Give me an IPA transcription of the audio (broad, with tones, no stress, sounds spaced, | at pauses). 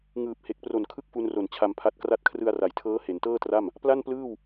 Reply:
ŋ ɯː˨˩ p̚ h e˨˩ k̚ p r o˨˩ n kʰ ɯ˥˩ k̚ f u˧ n r o˨˩ n t͡ɕʰ a˧ m pʰ a˦˥ t̚ k r a˦˥ t̚ kʰ r ɯ˧ a̯ r a˩˦ j tʰ ɤː˦˥ h e˩˦ n t ɤː˥˩ t r a˥˩ m | p l a˥˩ n p l ɯː˥˩ w